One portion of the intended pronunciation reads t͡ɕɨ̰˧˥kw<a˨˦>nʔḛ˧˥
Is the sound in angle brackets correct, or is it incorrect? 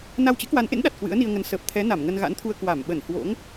correct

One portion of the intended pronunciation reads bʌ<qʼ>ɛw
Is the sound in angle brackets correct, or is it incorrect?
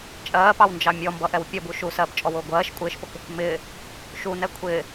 incorrect: ʔ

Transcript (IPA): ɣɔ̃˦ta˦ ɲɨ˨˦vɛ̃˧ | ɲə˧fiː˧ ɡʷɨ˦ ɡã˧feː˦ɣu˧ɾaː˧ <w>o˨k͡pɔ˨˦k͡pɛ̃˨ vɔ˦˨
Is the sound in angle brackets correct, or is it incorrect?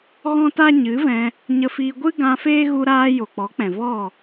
incorrect: j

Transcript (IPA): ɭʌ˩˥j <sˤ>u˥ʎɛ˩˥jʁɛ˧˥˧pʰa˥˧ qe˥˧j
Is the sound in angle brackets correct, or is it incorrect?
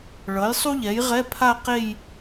correct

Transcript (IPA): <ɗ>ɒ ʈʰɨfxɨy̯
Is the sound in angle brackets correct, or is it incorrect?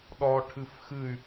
correct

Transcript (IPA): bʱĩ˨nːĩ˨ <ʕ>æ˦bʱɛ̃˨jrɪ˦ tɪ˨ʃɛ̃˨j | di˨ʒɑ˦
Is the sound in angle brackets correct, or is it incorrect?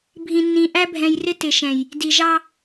incorrect: ʔ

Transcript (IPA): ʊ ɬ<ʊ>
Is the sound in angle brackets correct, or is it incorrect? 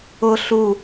incorrect: u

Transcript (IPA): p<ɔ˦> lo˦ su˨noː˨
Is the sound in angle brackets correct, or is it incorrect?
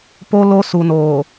incorrect: o˦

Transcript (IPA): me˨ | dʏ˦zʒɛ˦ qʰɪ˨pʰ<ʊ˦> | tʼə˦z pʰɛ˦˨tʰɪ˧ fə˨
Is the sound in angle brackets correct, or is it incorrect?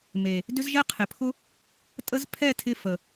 correct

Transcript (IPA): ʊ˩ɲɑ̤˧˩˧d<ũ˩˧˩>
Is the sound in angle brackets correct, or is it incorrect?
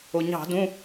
correct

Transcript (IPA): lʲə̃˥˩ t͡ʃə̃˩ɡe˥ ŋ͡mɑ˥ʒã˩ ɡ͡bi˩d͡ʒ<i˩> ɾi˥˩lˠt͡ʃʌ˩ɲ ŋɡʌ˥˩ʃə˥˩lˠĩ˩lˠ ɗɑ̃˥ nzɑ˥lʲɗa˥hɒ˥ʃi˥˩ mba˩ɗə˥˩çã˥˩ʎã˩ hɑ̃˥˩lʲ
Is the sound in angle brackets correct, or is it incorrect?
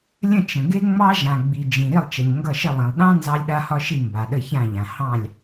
incorrect: ĩ˩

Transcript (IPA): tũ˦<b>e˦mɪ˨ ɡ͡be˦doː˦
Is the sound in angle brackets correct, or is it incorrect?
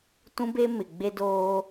correct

